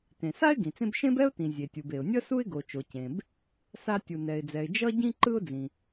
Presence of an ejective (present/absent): absent